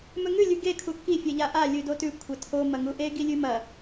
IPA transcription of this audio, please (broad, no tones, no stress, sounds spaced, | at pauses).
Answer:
m ɵ ŋ ʉ lʲ ʉ ɡ e kʰ u kː i fʲ e ʎ a ʔ a lʲ ʉ d o t ʉ kʷʰ ɐ tʰ o m ɐ ŋ u ʔ e ɡ i lʲ ʉ m ɐ